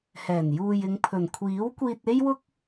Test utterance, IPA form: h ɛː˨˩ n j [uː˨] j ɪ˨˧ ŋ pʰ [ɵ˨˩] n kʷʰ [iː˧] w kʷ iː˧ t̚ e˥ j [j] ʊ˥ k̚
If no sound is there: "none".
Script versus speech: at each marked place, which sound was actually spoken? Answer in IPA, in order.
uː˨, ɵ˨˩, iː˨˥, w

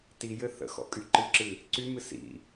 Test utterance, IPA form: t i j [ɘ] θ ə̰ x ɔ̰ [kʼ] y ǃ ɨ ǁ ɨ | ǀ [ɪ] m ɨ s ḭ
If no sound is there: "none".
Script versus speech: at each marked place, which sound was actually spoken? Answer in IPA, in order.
ɘ, kʼ, y

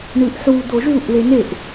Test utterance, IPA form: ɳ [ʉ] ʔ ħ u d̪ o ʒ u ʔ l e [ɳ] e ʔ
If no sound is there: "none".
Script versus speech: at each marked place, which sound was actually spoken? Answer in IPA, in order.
ʉ, n

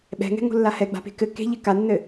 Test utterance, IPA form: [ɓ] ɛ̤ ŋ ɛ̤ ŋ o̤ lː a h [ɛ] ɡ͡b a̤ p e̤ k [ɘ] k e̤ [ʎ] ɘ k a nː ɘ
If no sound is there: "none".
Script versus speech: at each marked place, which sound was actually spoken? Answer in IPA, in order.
ɓ, ɛ, ɘ, ʎ

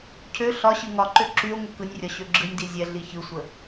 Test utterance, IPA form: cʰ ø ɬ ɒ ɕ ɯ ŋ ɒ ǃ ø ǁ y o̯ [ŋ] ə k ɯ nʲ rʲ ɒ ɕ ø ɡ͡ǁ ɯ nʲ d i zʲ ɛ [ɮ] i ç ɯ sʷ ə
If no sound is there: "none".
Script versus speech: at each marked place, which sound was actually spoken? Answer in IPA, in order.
ŋ, ɮ

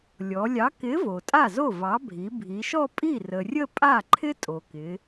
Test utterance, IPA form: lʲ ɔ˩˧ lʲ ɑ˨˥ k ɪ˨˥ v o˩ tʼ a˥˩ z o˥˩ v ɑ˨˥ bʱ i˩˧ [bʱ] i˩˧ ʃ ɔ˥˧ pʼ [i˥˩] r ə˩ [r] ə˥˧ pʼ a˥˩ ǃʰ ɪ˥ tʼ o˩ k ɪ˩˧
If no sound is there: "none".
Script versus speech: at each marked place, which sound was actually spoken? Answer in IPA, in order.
bʱ, i˥˩, rʲ

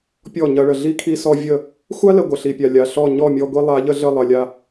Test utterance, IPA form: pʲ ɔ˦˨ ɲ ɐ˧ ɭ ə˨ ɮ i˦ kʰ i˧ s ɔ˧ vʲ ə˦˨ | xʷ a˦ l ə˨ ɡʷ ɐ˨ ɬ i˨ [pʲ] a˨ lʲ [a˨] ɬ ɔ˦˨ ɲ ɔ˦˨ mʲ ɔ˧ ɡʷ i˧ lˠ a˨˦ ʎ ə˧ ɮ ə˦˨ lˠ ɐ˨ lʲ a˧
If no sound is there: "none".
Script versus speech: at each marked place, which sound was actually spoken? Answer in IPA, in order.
pʲ, a˨

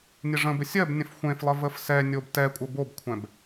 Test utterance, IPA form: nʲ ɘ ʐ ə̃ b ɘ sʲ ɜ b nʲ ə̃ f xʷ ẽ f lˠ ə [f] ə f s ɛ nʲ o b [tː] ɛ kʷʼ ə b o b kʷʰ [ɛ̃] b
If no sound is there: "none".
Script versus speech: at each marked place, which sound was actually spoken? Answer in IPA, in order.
v, t, ɛ̃

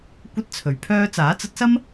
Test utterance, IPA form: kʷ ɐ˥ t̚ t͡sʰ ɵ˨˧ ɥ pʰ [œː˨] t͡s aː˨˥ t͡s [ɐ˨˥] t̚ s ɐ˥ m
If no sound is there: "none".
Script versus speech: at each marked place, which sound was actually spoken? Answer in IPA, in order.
œː˥, ɐ˨˥

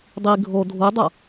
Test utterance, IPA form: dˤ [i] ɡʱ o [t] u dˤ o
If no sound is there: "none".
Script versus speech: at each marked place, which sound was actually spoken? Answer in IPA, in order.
i, dʱ

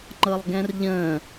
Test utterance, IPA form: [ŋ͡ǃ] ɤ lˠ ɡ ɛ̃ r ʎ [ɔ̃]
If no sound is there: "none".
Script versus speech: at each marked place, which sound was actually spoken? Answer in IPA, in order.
ŋ͡ǃ, ə̃

